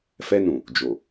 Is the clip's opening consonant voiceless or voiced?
voiceless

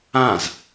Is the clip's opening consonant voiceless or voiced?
voiced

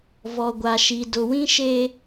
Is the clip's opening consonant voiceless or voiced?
voiced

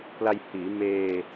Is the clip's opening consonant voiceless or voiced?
voiceless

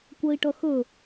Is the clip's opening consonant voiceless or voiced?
voiceless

